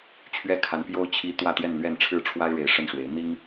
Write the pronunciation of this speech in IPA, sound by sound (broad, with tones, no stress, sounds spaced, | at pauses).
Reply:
t͡ɕʰ ɥ ɛ˥˩ kʰ a˧˥ n p j o˥ ʊ̯ t͡ɕʰ i˧˥ t̪ w ä˥˧ t̪ j ɛ˥˧ n l ɥ ɛ˥˧ n ʈ͡ʂʰ ɻ̩˥˩ ʈ͡ʂʰ w a˥ ɪ̯ ɻ e˧˥ ɪ̯ ʂ ə˥˩ n ʂ w e˧˥ ɪ̯ n̪ i˥ ŋ